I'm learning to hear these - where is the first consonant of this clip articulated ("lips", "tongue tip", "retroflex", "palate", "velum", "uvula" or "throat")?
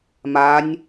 lips